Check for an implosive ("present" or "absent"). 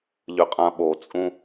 present